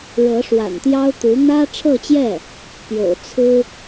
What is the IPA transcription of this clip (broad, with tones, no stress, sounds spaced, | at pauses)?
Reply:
ɻ ɤ˧˥ ʂ w a̰˨˩ n t̪ j ɑ˥ ʊ̯ t̪ u˧˥ n̪ ä˥ ʈ͡ʂʰ ɤ˥˧ t͡ɕ j ɛ˥˩ | p j o̰˨˩ ʊ̯ t͡sʰ ɹ̩˥